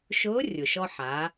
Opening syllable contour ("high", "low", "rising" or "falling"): rising